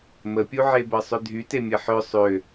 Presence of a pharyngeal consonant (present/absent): present